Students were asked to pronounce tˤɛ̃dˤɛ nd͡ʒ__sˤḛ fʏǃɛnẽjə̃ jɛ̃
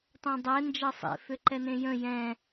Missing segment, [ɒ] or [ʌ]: ʌ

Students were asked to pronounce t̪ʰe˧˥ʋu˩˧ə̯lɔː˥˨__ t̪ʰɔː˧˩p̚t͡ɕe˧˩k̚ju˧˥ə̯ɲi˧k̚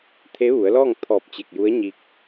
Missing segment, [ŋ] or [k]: ŋ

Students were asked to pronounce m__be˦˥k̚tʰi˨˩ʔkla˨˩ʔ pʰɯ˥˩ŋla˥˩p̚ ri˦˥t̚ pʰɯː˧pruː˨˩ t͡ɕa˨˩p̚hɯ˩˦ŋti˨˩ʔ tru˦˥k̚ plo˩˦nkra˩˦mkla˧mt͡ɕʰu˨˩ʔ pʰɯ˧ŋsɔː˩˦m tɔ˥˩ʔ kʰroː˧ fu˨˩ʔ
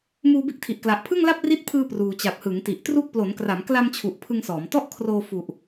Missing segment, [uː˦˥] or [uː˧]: uː˧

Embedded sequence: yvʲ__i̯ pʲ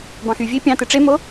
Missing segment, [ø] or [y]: ø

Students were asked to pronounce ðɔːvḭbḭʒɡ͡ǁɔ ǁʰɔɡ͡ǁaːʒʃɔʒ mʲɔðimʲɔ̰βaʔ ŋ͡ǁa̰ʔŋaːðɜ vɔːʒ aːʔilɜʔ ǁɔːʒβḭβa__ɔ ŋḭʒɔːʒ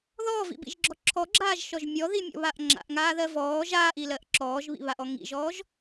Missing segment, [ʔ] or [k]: ʔ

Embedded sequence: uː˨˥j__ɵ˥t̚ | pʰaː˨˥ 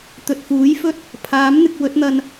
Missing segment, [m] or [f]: f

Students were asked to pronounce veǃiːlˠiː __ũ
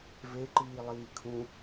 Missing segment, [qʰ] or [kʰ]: kʰ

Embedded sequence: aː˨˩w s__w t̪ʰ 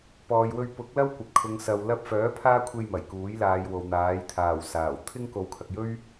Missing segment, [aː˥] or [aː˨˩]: aː˨˩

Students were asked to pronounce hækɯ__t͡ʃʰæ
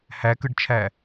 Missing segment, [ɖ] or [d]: ɖ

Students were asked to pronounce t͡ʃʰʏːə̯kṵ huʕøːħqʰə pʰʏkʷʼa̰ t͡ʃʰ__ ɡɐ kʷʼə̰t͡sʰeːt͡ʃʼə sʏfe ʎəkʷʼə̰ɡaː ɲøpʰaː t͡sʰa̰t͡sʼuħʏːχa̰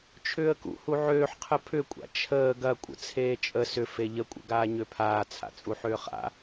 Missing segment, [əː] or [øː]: əː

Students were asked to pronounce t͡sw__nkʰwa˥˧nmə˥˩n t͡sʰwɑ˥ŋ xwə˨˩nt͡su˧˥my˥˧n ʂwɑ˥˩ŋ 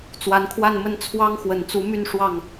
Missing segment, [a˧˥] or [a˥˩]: a˧˥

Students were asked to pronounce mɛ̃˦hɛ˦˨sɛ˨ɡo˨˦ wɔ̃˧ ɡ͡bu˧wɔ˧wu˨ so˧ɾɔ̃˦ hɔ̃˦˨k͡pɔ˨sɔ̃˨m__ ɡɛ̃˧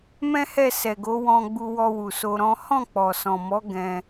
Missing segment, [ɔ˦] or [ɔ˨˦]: ɔ˨˦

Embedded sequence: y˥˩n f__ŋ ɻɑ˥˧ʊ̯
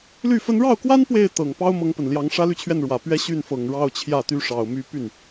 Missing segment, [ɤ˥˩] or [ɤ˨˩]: ɤ˨˩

